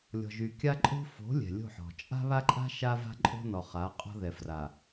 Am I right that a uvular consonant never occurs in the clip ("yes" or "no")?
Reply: no